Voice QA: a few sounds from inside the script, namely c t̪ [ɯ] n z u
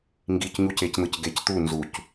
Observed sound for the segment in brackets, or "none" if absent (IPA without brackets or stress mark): u